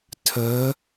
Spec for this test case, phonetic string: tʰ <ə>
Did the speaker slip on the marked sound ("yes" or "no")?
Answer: no